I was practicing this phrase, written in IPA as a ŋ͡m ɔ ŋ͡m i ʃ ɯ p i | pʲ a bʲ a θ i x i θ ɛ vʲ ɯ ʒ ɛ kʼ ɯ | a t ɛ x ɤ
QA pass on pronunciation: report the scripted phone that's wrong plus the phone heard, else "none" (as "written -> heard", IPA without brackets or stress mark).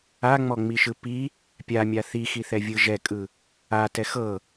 bʲ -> mʲ